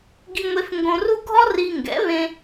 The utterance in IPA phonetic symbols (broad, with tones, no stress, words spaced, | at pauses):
ɡi˧ŋʷe˧f ŋɡõ˧ru˥ ɡʱɔ˥ ri˧ ŋɡɛ̰˩˥βẽ˧